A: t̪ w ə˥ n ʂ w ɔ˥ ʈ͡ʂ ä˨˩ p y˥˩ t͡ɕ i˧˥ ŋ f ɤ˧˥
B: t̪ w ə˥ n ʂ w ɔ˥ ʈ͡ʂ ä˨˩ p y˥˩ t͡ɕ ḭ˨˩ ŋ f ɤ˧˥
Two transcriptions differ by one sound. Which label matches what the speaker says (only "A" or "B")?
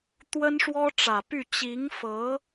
A